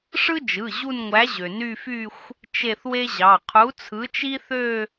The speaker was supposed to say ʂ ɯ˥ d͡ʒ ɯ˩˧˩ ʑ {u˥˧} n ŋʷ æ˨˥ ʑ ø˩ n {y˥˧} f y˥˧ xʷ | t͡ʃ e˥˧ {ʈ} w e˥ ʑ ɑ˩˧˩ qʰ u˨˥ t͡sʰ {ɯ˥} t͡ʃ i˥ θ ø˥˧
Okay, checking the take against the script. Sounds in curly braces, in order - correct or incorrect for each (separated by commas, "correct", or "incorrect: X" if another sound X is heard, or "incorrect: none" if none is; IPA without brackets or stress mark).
correct, correct, incorrect: θ, incorrect: ɯ˨˥